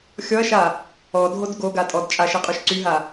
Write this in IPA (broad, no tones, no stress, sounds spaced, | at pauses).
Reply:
xʲ ɔ ɐ̯ ʃ a | ɔ dʱ o d ɡ o ɡ a tʼ ɔ d t͡ʃʼ a ʃ i qʼ y ʃ ǀ y ɦ a